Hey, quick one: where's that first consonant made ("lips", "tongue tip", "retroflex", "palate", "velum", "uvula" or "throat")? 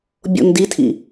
lips